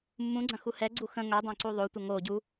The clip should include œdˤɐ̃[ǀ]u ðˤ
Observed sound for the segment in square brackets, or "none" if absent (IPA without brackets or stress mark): ǀ